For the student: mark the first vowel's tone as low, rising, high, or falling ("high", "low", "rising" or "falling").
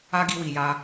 high